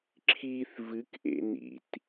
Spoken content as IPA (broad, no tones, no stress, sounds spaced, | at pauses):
ǁʰ i θ v ɨ k ʔ ḛ n ḭ t